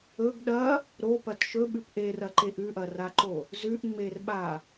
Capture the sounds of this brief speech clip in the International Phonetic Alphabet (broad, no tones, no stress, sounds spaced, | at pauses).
ɵ ɡ ɗ ɐ | ɾ o p ɐ t ʃ ɵ ɓ ʉ p ʔ e r ɐ ǃ e ʔ ʉ ʔ ɐ r a ǃ o | z ʉ ʔ ŋ͡m e r ɓ a